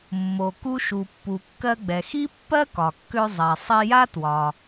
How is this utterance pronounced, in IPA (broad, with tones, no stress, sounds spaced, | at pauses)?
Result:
mː o˩ k u˧ ʃ u˩ pː u˩ kː ɜ˧ ɡ͡b ɛ˩ x i˥ pː ɜ˥ k ɒ˩ kː ø˧ zˤ ɛ˩ sˤ i˧ j a˥ t w ɒ˩